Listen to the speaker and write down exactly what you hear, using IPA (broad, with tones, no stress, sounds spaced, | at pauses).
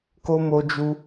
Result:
k o˦ m o˦ d͡ʒ u˦